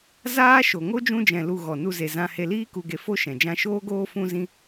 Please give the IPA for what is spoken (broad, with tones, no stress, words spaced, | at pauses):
zaː˦ʃo˨ ŋo˦d͡ʒũ˧d͡ʒɛ̃˨ lu˨ ɣɔ˨nu˧ ze˨zã˧he˧ liː˧ku˨ɡe˨ fo˦ʃɛ̃˨ d͡ʒã˧ʃoː˦ɡoː˦ fũ˦zĩ˦